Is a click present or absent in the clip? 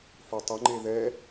present